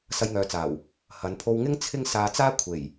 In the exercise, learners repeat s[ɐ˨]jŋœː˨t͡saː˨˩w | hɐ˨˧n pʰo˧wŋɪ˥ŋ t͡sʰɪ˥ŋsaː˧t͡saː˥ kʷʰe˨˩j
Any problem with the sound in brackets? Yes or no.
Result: yes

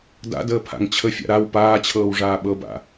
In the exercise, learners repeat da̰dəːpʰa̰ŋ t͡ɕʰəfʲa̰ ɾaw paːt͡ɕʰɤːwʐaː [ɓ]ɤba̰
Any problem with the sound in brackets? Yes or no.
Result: no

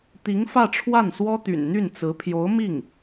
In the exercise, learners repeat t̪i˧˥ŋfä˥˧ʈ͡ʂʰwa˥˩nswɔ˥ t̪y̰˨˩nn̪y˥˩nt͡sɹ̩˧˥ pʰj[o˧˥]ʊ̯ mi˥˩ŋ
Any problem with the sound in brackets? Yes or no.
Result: no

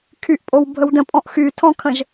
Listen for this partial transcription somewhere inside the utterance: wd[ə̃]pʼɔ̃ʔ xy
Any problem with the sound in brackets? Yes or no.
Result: no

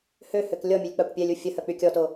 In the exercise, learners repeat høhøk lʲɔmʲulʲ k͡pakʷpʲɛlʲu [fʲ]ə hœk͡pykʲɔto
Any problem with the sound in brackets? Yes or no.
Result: no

